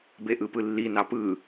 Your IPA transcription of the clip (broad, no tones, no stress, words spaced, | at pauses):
beʔɯpɯlːi nɑpɯ